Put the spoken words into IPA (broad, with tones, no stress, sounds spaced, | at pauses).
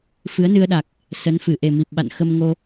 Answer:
f ɨ˨˦ ə̯ n ɨ˧ ə̯ ɗ a˨˩ k̚ | s ə˨˦ n f ɨ˧˩ ʔ e˨˩ m i˨˩ p̚ ɓ a̰˧˨ n x ə˧ m ŋ o˧